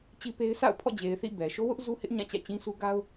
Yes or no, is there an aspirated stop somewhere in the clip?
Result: yes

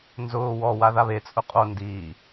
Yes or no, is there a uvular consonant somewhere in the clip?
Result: yes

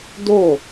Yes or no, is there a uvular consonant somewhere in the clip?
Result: no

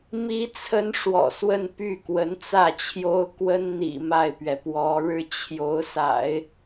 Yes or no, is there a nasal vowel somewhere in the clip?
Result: no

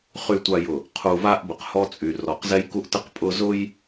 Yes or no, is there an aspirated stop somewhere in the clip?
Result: yes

